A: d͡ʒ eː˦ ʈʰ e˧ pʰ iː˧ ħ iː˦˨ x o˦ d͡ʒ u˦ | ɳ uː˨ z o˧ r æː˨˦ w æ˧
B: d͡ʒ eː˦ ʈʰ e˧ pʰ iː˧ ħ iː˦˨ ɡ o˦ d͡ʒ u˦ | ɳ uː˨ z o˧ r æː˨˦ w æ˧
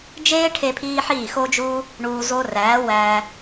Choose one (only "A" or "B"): A